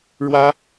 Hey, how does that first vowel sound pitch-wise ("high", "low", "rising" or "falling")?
high